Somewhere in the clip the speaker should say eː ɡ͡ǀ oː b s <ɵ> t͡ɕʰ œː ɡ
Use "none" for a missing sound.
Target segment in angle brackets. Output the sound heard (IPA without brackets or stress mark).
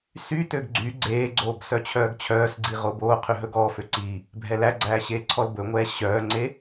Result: œ